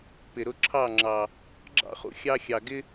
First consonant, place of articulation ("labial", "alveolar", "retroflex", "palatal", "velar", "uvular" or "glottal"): labial